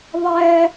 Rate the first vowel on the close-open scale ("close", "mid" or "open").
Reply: mid